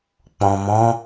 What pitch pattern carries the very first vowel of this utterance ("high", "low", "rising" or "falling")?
low